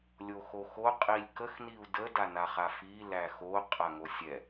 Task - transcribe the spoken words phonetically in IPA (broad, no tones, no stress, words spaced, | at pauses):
lʲoxoxo qʼilʲkəxniu̯ dədanaχa fi læxo qʼaŋosʲɛ